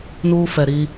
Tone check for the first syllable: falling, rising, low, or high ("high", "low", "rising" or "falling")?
high